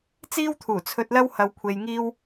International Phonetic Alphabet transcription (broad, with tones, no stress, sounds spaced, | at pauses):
t͡s iː˥ w t̪ʰ uː˨˩ t͡sʰ ɵ˧ t̚ l ɐ˥ w h ɐ˧ w kʷʰ e˧ j ŋ iː˥ w